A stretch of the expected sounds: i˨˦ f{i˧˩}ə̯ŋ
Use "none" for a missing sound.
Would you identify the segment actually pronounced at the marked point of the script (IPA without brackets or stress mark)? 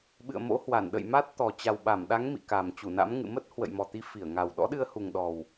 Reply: i˧˩